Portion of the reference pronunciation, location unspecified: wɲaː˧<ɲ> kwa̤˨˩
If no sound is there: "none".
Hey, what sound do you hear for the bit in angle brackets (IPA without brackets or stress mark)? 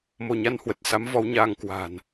ŋ